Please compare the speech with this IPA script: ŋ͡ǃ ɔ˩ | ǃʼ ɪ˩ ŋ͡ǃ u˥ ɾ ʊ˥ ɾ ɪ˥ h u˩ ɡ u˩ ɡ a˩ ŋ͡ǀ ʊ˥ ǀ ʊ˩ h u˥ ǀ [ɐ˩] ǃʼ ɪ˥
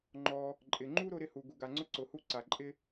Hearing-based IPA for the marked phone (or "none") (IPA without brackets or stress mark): a˩